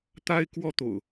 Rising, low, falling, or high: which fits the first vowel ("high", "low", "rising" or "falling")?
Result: high